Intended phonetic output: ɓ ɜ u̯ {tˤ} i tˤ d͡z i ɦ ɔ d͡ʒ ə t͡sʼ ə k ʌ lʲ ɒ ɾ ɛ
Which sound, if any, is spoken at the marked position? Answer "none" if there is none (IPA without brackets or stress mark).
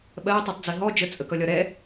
tˤ